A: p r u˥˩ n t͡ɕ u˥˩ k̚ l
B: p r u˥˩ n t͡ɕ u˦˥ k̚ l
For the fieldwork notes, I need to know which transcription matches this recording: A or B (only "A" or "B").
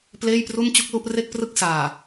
A